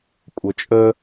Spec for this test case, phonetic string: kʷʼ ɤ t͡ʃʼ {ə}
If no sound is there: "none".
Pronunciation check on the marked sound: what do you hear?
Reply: ə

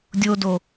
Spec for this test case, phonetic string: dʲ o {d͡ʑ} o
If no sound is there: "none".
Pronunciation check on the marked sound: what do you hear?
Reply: d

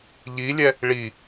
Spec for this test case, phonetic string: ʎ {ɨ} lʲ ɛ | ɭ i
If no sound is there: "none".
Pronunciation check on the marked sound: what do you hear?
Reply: i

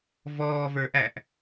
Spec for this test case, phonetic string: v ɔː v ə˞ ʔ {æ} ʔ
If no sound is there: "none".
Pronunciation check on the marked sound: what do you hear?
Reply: æ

